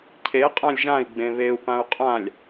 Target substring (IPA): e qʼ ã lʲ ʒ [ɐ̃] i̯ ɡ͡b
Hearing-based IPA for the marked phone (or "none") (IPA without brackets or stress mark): ã